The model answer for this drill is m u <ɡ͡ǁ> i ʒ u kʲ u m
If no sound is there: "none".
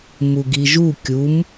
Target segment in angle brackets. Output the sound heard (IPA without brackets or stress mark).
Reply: ɡ